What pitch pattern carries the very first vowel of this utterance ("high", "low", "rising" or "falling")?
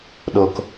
low